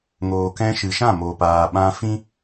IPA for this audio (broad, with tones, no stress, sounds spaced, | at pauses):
ŋ oː˨ k ɛ̃˧ ʃ ɨ˨ ʃ ã˦˨ m oː˨ p aː˨ ɓ ã˧ f ĩ˦